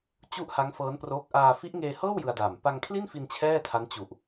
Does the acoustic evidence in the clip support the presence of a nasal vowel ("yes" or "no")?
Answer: no